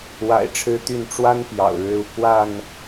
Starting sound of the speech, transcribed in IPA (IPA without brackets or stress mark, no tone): w